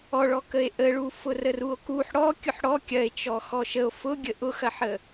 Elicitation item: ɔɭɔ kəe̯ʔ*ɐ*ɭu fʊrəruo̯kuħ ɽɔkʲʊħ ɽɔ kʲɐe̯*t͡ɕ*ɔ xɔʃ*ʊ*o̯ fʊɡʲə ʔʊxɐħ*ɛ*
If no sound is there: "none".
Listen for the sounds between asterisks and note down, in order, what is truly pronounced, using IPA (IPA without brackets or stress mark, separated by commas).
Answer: ə, t͡ʃ, ə, ə